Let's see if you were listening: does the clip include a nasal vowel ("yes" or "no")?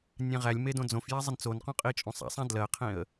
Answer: yes